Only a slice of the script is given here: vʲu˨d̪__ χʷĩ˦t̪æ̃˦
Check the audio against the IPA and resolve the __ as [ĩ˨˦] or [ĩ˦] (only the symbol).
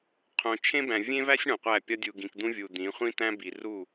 ĩ˨˦